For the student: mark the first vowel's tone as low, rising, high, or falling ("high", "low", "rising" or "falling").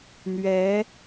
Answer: rising